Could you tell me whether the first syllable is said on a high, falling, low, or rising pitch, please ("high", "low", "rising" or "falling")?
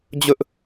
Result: high